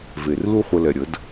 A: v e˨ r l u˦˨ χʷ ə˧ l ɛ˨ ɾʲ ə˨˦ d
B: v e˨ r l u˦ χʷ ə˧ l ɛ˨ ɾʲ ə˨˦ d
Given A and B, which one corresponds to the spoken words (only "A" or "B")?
B